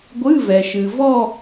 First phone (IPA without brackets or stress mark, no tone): ɡʷ